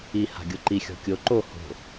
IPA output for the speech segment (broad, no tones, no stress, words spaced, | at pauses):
i ha̤ɡʲoǃi xʲɔ̤kʲo ǃo ho̤